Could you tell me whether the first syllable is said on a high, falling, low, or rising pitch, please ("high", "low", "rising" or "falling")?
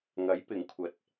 rising